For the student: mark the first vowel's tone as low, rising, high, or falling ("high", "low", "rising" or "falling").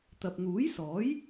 low